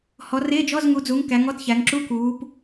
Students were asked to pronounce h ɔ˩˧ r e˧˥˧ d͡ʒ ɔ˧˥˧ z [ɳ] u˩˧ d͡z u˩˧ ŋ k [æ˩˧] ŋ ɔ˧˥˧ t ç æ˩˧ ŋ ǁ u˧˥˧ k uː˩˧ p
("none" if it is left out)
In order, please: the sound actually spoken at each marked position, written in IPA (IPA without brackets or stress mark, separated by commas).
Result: ŋ, æ˩˧